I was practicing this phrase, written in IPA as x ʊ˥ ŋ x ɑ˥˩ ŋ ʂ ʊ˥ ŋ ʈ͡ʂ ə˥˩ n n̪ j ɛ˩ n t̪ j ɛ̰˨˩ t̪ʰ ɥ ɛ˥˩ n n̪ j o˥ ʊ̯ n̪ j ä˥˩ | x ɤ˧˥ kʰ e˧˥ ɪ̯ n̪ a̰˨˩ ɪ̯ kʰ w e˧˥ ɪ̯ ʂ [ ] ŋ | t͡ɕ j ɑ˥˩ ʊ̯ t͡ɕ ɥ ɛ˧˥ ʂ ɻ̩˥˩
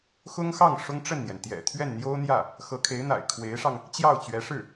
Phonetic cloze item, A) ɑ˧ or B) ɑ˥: A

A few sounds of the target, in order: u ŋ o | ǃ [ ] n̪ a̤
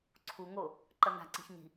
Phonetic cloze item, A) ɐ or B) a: A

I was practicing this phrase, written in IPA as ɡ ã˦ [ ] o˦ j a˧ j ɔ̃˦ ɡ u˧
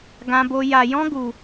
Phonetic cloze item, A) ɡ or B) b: B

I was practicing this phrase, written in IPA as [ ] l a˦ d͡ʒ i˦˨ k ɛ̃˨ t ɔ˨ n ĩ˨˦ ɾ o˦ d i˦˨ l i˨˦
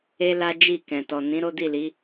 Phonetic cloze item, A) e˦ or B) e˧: A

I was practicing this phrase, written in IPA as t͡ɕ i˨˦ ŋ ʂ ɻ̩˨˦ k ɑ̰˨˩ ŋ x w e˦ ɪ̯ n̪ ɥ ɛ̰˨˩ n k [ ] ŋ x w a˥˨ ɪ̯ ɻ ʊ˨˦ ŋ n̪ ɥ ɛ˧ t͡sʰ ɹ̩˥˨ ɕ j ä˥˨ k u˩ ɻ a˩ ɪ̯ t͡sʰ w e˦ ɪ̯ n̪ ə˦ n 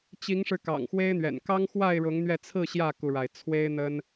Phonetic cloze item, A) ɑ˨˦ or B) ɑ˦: B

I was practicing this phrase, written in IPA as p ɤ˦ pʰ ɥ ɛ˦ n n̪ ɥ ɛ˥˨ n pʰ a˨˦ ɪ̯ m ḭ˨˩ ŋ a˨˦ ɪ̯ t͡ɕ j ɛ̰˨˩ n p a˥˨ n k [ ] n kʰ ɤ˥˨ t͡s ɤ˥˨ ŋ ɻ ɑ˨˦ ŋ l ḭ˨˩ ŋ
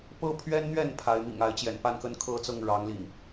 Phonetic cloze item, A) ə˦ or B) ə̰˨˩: A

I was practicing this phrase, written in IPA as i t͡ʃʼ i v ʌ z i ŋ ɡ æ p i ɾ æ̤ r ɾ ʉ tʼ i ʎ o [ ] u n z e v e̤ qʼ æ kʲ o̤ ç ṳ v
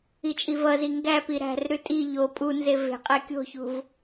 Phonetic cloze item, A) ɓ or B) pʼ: B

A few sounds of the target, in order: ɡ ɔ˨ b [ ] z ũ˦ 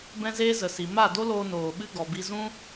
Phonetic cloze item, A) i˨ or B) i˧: B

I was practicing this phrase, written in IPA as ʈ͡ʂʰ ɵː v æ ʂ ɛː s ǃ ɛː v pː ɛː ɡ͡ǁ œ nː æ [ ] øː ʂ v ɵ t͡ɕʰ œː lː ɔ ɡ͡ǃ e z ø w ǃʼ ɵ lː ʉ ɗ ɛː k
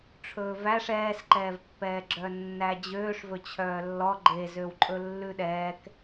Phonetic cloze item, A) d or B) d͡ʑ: B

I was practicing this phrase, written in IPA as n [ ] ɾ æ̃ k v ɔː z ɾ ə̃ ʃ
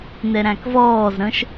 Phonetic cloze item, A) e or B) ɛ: B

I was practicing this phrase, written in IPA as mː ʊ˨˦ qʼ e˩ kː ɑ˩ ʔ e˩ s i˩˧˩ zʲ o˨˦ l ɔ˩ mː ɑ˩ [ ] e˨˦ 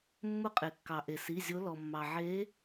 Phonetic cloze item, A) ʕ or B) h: A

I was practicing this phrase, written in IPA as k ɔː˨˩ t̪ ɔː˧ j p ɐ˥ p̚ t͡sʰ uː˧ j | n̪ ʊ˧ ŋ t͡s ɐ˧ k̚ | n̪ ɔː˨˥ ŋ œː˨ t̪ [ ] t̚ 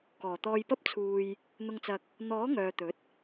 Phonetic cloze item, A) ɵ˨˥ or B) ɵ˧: A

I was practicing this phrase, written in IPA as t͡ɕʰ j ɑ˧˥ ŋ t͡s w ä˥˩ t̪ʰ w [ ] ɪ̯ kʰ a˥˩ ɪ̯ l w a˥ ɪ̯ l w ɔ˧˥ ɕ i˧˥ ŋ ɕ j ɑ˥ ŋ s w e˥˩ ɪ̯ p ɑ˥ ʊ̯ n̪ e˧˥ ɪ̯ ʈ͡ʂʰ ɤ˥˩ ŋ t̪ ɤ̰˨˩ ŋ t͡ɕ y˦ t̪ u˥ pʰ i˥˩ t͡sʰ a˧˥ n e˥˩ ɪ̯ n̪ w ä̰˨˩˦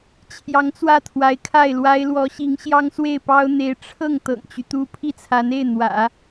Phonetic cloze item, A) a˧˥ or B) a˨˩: A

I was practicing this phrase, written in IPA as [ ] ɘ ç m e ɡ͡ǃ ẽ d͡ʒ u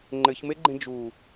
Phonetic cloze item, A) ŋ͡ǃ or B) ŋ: A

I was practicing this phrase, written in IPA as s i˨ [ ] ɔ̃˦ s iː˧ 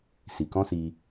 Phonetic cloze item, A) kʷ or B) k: B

